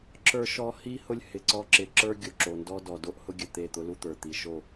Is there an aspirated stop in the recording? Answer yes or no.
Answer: no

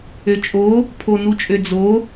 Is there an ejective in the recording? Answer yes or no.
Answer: yes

